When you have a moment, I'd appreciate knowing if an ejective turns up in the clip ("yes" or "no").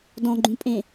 yes